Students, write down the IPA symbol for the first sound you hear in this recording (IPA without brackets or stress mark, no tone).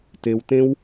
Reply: t